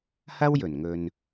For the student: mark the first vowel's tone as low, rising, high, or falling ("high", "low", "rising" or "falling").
high